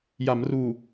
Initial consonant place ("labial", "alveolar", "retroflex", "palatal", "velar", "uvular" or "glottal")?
palatal